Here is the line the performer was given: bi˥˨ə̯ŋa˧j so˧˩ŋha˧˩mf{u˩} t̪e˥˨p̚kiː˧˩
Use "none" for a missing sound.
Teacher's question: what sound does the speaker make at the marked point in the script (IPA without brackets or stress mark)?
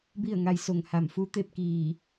u˧˥